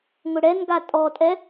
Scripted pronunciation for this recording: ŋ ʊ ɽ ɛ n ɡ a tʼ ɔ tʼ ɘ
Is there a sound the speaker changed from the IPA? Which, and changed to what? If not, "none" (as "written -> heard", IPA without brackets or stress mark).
ɘ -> ɛ